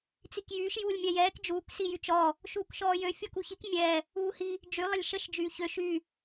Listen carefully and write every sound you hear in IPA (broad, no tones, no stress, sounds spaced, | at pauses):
t͡s i k j yː ʃ j uː lʲ mʲ ɛ j ɛː k d͡ʒ uː k s i j y t͡ʃ ɔ | ʃ uː k ʃ ɔː j ø fʲ ɔ k u ç i k mʲ ɛ | uː h i | d͡ʒ y lˠ ə lʲ ʃ ə ʃ d͡ʒ yː ç ø ʃ y